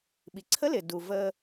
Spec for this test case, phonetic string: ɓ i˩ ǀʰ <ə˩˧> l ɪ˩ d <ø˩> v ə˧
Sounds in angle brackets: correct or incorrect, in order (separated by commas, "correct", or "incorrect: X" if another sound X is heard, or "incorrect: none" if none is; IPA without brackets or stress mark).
incorrect: ə˧˥, incorrect: u˩